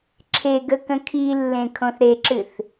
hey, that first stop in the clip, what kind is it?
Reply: click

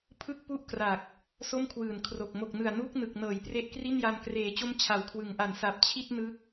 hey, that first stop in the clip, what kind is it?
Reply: aspirated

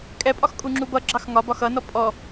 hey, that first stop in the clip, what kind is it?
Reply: ejective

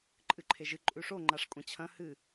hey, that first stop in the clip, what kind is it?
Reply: click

